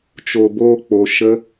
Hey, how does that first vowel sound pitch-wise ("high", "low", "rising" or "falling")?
low